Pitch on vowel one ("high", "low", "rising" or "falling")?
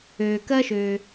low